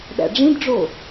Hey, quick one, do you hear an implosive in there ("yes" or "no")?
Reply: yes